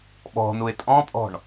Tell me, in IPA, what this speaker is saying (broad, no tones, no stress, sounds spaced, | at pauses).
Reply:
ɓ ɔ̤ n u ɪ̯ tʼ ɔ̃ pʼ ɔ̤ ɳ